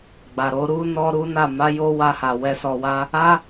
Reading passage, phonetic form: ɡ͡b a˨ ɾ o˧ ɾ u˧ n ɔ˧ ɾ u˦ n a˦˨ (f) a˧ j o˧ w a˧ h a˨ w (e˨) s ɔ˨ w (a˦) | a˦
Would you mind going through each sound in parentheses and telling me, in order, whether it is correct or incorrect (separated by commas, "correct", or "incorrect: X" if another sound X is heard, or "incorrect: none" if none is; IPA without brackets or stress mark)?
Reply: incorrect: m, incorrect: ɛ˨, incorrect: a˧